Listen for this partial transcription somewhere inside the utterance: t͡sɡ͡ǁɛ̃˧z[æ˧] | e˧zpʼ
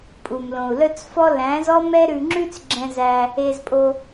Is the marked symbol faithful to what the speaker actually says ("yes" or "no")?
yes